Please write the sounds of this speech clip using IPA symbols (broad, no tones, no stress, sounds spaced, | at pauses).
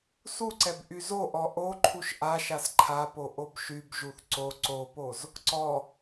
s u ǀ ɛ b ʔ y z o ʔ ɔ ʔ o ǃʰ u ʃ ʔ a ʃ a s ǃʰ a p o ʔ o b ʃ y b ʒ u θ ǀ o ǀ o p o z | ǀ ɔ